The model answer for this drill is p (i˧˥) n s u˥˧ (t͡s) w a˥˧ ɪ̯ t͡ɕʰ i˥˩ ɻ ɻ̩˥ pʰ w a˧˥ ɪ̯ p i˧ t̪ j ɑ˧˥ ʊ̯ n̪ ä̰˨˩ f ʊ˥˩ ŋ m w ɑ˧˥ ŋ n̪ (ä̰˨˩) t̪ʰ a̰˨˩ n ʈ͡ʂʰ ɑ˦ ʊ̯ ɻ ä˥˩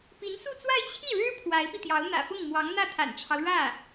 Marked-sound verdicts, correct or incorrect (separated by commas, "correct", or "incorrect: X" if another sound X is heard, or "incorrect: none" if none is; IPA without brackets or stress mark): correct, correct, incorrect: ä˥˩